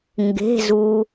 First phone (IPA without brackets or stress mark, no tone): ŋ